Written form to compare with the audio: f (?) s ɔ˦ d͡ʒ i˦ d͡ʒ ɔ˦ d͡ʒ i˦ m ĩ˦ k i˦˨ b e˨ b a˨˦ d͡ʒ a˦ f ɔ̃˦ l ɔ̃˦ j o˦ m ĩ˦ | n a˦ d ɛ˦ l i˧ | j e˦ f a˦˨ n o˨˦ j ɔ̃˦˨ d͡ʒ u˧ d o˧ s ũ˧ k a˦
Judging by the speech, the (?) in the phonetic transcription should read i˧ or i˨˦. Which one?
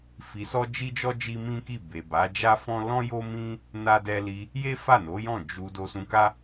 i˧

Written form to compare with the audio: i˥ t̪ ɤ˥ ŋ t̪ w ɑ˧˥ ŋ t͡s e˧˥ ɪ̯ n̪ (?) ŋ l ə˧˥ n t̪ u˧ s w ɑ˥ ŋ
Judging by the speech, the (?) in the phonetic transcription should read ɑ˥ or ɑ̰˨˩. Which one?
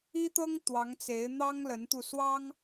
ɑ˥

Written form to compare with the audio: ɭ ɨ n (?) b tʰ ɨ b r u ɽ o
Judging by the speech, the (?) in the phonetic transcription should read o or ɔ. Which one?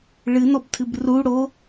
ɔ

